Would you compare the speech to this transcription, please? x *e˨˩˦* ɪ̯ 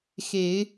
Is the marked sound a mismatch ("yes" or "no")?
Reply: no